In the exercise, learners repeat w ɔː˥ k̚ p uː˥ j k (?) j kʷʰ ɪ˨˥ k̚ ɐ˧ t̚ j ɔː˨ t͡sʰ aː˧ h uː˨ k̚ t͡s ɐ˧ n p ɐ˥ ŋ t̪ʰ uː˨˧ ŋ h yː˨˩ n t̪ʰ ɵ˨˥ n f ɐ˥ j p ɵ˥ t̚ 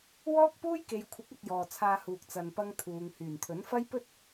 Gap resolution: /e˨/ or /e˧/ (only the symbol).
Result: e˨